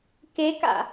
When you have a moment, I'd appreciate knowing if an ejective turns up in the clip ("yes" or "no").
no